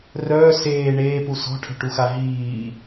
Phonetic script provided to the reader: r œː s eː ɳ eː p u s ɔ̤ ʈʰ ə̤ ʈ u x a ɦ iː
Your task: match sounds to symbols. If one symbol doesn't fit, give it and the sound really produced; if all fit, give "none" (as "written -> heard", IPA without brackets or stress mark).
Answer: none